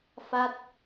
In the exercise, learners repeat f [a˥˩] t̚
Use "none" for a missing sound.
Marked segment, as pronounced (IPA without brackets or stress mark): a˥˩